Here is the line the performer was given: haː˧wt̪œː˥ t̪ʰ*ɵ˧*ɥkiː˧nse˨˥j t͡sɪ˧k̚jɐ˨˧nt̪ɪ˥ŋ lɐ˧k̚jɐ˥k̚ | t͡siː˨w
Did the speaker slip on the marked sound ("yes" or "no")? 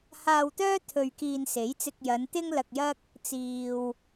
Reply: no